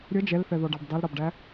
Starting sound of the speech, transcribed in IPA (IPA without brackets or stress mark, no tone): ɾʲ